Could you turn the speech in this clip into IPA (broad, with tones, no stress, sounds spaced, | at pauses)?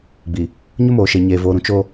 ɡ͡b i˨ | ɲ ʊ˦ m oː˨ ʃ e˨ ɲ eː˨ v oː˨ ɾ ũ˨ t͡ʃ o˦